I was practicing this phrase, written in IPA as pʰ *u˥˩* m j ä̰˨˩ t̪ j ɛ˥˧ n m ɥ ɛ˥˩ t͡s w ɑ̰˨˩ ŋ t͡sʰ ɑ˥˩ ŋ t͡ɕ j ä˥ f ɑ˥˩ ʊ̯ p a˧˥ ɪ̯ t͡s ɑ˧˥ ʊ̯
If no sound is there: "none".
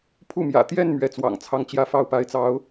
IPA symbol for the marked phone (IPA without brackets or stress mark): u˥˩